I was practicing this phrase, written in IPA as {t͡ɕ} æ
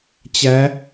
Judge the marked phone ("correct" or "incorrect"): correct